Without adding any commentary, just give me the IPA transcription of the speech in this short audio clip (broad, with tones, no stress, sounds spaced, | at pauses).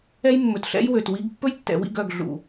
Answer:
ɛ˦ j mː ɵ˨ t ɬ ɛ̰˦ j w ø˨ t w i˦ ɡ pː ɵ˦ j tː ɛ̰˨ w ḭ˦˨ ɡ œ˨ ɡ ɮ ṵ˨